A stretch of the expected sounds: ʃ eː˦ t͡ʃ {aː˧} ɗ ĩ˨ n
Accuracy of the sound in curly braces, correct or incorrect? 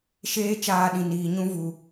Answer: correct